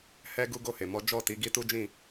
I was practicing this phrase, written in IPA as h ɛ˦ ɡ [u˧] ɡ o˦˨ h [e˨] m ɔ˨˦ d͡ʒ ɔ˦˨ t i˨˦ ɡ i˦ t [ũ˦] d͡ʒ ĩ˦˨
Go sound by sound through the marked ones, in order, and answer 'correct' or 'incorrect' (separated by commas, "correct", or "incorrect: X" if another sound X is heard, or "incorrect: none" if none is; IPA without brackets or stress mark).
incorrect: u˦, correct, incorrect: u˦